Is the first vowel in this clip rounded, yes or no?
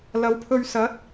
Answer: no